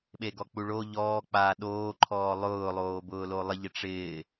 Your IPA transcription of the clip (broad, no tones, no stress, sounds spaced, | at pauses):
ɓ e ɡ ɔ k͡p u ɭ o ʎ ɔː k͡p aː ɗ oː ǃʰ ɔː lˠ ʊː lˠ oː b ʊː l o lˠ ɪ ʎ ɪ ʈ͡ʂ ɪː